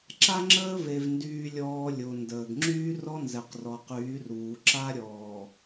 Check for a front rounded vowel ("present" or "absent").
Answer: present